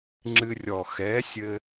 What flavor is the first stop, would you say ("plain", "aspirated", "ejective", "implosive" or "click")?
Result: click